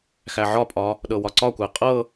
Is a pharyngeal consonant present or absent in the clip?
present